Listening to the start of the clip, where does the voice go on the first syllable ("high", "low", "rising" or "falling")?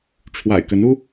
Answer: low